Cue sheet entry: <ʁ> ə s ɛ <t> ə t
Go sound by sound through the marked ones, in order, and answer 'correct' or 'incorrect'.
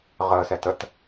correct, correct

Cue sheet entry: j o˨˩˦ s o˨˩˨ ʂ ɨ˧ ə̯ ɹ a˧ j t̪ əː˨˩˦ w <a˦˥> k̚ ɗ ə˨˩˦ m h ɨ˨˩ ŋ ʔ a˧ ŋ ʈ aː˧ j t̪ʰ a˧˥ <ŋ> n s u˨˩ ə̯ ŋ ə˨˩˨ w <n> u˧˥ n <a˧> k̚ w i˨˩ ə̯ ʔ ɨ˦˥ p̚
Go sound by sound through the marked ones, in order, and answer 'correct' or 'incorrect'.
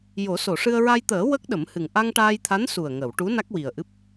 incorrect, incorrect, incorrect, incorrect

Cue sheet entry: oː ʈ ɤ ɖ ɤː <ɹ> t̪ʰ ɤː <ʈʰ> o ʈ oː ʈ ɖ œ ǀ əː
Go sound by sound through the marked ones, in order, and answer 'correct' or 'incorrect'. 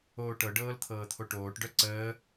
incorrect, incorrect

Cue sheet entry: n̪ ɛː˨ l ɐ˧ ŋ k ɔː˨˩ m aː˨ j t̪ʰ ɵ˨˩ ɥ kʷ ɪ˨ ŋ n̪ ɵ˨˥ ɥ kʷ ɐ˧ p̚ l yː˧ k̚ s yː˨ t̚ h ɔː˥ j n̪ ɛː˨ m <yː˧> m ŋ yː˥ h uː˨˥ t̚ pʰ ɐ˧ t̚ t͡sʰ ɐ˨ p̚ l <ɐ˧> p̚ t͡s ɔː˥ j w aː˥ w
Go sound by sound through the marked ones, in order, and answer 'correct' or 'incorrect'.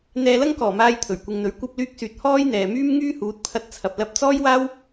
incorrect, correct

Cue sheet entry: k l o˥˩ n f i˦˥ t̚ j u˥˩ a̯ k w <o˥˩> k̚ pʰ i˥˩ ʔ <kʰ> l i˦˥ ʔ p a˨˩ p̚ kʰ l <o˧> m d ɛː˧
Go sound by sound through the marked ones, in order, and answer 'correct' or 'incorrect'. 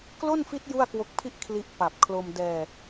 incorrect, correct, correct

